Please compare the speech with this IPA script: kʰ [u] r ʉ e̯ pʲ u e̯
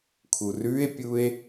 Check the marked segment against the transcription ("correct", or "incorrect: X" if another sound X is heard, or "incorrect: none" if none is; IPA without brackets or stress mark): correct